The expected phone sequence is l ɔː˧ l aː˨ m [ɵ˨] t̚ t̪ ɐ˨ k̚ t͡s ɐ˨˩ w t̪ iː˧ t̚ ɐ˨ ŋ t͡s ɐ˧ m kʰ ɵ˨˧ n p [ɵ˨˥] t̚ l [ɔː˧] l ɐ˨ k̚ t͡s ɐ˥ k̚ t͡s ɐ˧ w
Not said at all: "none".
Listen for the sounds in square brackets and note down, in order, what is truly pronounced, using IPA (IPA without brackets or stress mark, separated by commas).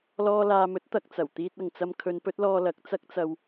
ɵ˨˥, ɵ˨˥, ɔː˧